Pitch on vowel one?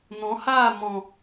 rising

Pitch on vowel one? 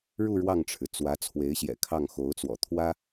falling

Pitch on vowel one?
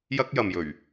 high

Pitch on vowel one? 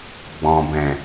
low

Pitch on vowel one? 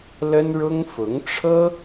high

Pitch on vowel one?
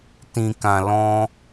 low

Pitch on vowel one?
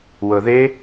low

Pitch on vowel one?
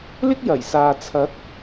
high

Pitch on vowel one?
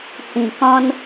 low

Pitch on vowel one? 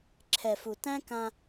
low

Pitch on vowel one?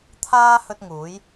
high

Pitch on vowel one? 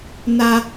high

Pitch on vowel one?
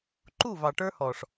falling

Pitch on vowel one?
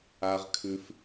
high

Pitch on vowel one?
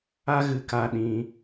high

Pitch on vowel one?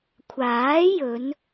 rising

